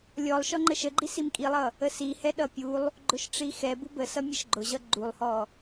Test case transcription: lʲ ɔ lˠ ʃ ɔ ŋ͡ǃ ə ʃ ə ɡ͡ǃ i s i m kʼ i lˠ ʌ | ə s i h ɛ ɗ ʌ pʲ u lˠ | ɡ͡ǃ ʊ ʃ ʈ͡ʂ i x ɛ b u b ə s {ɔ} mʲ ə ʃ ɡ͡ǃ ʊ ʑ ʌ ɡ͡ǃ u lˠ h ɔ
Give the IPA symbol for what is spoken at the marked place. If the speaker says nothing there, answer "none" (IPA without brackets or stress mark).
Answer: ʌ